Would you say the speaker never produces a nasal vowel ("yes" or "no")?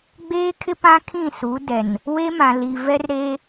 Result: no